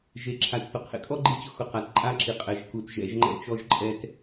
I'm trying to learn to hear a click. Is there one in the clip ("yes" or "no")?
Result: yes